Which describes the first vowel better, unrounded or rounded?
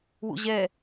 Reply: rounded